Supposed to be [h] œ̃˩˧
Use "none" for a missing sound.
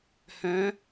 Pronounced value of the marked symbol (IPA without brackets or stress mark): h